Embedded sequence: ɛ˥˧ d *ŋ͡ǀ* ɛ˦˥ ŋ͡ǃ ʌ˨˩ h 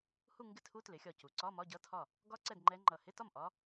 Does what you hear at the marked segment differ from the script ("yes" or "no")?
yes